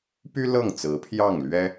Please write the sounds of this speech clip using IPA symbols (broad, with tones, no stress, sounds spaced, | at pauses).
p y˥ l ɤ˥˩ ŋ t͡s ɹ̩˧˥ pʰ j ɑ˥˩ ŋ l ɥ ɛ˥